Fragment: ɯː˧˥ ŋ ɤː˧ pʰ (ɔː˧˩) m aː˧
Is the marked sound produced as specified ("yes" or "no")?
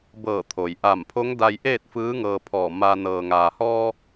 yes